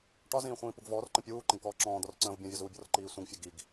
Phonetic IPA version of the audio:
ʈ ɒ z ĩː χʷ ĩː p u ɡ v ɔː r ǃ ə̃ pʲ uː ǃ ə̃ ɡ k ɔː ǁ ɔ̃ː d̪ ɔ r ǀ ə̃ː v bʲ ɔ̃ vʲ ɒ z uː bʲ ɔ r ǃ iː sʷ ə̃ ɡ fʲ ə ɡ i ɡ

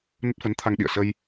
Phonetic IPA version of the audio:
n ə˦˥ t̚ f ə˨˦ n t̪ʰ a˧ ŋ ɗ ḭ˧˨ ə̯ s ə˧ j

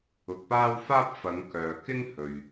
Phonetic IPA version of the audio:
ʊ˧ k̚ p aː˥ w f aː˥ p̚ f ɐ˨˧ ŋ k œː˨ k ɪ˥ ŋ h ɵ˨ ɥ

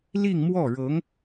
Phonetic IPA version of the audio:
l i˥˧ ŋ m w ɔ˥˩ ɻ ɤ˧˥ ŋ

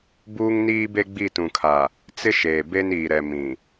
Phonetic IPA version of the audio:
b uː˦ ŋ n iː˦ b e˦ ɡ͡b i˦˨ t ũ˨ kʰ a˨ | t͡s ɪ˦ ʃ eː˨ b e˦ n iː˨ ɾ ɛ˨ m ĩ˨

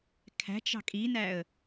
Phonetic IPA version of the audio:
kʰ æ̤ t͡ʃ ɑ̤ kʼ i n æ ə̯

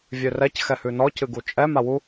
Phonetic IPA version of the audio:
vʲ ø r ɛ c x ɛ h ʉ n ɔ c ɨ ɡ u t͡ʃʼ ɛ m a w u

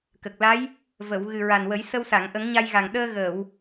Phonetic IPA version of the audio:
k ə˨˩ k̚ l a˧˥ j | v ə˨˩˨ w ɣ ɨ˨˩ ɹ a˨˩ n w ə˨˩˦ j s ə˧ w s a˨˩˨ ŋ ʔ ə˨˩˦ ŋ ɲ a˧ j ɣ a˨˩ ŋ ɗ əː˧ ɣ əː˨˩˨ w

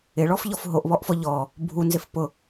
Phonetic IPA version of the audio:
ɪ ɭ ɔ f ʎ ɔ f ɦ o ʔ β ɔ ʔ f ɔ ʎ ɔ | bʱ u n z ɪ f p ʊ

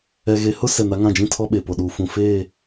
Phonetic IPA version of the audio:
ɛ˨ ɣ e˨ h ʊ˦ s ɛ˨ n a˦ ŋ ã˦˨ d͡ʒ ĩ˦ tʰ ɔ˦ ɓ e˨ p o˨ ɗ uː˨ f ũ˨ f eː˦˨

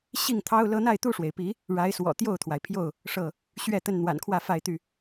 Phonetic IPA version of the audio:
ɕ i˥˨ ŋ t̪ʰ ɑ˦ ʊ̯ l ɤ˦ n̪ a˥˨ ɪ̯ t̪ u˥˨ ʂ w e˩ ɪ̯ p i˨˦ | ɻ a˨˦ ɪ̯ s w ɔ̰˨˩ t̪ j o˥˨ ʊ̯ t̪ʰ w a˩ ɪ̯ pʰ j o˥˨ ʊ̯ | ʂ ɤ˥˨ | ɕ ɥ ɛ˥˨ t̪ ə˥˨ n n̪ w a̰˨˩ n kʰ w ä˥˨ f a˥˨ ɪ̯ t̪ y˥˨

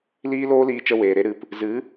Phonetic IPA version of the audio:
l iː˦ l oː˦ l iː˧ t͡ʃ ə˧ w eː˨ ɾ e˦ ɾ ɨ˨ p | z ɨ˨˦

